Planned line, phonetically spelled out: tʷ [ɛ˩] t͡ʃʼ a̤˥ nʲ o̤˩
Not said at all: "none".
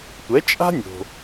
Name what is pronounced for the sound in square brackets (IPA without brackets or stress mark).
ɛ˩˥